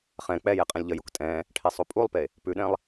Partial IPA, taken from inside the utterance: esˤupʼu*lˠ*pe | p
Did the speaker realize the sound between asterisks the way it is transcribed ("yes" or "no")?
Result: yes